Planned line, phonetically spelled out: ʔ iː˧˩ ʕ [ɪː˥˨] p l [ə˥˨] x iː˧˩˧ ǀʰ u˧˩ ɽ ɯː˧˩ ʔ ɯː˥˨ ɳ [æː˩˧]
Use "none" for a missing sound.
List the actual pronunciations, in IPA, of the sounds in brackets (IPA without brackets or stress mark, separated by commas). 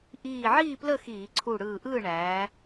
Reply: iː˥˨, ə˥˨, æː˩˧